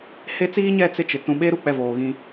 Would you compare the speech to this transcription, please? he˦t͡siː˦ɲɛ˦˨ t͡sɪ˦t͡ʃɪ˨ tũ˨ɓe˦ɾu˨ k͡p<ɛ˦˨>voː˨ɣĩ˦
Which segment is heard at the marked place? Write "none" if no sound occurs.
ɛ˦˨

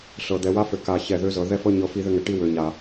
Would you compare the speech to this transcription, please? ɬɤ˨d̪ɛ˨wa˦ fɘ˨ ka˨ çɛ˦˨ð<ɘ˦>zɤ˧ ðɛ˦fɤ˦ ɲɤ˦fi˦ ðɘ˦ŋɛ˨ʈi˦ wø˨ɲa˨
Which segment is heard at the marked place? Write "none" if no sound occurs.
ø˦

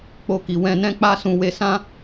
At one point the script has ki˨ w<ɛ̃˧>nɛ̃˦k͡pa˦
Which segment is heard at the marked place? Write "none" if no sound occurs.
ɛ̃˧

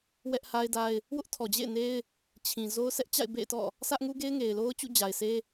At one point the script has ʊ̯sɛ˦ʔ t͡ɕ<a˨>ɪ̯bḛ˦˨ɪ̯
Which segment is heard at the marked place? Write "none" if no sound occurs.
a̰˦˨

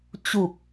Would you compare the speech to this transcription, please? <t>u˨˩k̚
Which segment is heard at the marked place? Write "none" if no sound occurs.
t͡ɕ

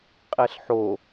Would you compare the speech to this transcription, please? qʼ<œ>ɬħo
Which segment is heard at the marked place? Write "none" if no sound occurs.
ɛ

